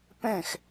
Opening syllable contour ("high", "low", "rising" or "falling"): falling